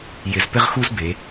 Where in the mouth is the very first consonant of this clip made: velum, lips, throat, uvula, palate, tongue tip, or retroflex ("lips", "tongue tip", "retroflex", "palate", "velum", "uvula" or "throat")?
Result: palate